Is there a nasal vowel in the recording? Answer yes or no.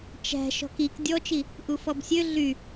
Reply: no